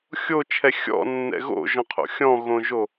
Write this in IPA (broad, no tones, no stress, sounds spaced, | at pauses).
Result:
xʲ o t͡ʃʰ ɛ xʲ ɔ̰ nː ɛ̰ ɣ o̰ ʒ ɔ̃ qʰ o̰ xʲ ɔ̃ ɣ õ ʒ o